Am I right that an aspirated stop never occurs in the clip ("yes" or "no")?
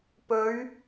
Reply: yes